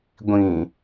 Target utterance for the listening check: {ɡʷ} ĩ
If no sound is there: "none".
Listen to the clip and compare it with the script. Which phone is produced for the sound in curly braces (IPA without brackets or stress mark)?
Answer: ɡʷ